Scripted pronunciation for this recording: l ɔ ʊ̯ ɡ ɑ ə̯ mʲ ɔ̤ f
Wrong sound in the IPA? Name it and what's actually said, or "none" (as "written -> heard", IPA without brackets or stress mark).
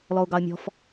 none